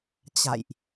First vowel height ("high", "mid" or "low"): low